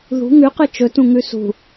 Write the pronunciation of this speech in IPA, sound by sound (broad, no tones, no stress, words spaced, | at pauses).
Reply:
ðṳ ŋʉqɨ t͡ʃɵtũŋʉ sṳ